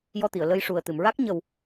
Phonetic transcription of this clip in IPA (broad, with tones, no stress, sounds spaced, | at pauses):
j ɔ˧ t̪ i˨˩˨ ə̯ l ə˧ j ʂ u˨˩ ə̯ t̪ ɨ˨˩˨ m ɹ a˦˥ k̚ ɲ ə˨˩ w